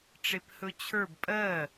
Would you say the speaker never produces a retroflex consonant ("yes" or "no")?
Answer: no